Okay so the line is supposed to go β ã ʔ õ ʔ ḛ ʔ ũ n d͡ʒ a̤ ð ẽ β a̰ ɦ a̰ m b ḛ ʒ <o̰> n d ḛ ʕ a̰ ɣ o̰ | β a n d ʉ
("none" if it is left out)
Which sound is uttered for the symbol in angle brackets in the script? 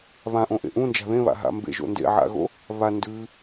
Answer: o̰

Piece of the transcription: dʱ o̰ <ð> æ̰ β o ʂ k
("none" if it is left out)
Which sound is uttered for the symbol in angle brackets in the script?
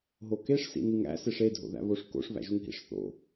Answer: ð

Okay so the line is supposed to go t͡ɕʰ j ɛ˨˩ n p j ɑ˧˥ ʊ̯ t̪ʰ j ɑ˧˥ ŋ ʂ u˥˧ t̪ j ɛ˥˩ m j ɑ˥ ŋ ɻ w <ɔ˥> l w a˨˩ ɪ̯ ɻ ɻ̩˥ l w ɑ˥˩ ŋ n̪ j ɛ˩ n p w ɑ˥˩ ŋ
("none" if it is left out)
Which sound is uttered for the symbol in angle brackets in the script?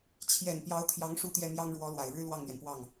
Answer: ɔ˧˥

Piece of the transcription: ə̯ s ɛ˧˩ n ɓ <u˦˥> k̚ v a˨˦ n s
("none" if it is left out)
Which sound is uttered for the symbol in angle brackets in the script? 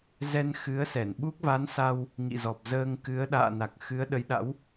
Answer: u˦˥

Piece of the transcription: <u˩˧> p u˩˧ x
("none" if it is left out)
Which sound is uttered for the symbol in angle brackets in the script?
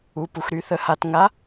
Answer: u˩˧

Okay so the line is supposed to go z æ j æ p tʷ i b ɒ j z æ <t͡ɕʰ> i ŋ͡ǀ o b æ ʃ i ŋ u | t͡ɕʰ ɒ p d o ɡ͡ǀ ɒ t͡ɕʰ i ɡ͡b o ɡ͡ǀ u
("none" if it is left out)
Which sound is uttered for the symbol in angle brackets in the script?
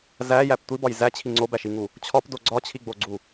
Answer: t͡ɕʰ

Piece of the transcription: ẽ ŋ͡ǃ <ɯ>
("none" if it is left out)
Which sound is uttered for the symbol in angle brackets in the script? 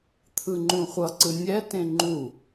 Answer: u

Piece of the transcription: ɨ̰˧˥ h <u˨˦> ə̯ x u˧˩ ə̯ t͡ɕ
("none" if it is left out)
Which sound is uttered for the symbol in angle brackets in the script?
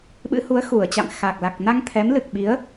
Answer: u˨˦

